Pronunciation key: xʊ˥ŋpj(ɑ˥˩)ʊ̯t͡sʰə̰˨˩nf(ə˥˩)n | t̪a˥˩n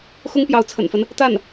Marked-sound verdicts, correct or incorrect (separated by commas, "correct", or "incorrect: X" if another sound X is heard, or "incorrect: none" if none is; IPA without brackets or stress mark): incorrect: ɑ˧˥, incorrect: ə˦